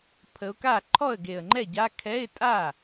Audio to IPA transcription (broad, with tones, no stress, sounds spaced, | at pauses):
pʰ ə˨˦ ʊ̯ k a˥˩ ǃʰ ɔ˥˩ ə̯ ɡ e˨˩ ə̯ ŋ͡ǃ ɛ˥˩ ɟ a˧˥˧ kʰ ɛ˧˥˧ ɪ̯ tʼ a˥˩